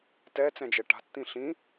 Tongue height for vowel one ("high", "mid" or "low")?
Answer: mid